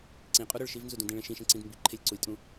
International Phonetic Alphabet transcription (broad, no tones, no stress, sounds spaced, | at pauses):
ǀ ĩ qʼ u ɾ ʏ ɭ ʃ i v n z u d ũ d ĩ ɭ ẽ ʃ ĩ ʃ ẽ ǀ ĩ d m b i ǃʰ e lʲ ǀ u lʲ tʼ ũ